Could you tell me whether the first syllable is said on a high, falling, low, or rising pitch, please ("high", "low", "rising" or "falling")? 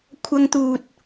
high